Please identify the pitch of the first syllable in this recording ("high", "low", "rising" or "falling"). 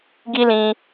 high